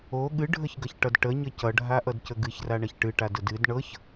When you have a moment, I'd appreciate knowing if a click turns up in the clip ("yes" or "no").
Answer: no